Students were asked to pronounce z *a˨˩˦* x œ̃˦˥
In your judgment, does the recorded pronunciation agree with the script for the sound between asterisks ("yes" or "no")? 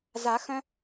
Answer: yes